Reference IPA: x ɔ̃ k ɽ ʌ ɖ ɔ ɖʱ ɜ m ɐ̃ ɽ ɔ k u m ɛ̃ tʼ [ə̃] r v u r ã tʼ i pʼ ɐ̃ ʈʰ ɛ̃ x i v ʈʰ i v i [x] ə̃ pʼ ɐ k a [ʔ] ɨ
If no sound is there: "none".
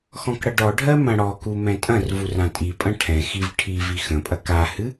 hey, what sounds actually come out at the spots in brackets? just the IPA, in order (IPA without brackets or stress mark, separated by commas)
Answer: ɐ̃, x, h